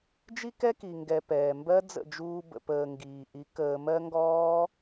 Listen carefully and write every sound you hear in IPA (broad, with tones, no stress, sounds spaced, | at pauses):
d͡ʒ i˦ k ɛ˦ k i˨ ŋ ɡ ɛ˨ p ɛː˨ m b ɜ˦ d͡z ə̰˦˨ d͡ʒ uː˧ b ə̰˨ p əː˨ ŋ ɡ iː˨ ʔ i˨˦ k əː˧ m ɜ˦ ŋ ɡ ɔː˦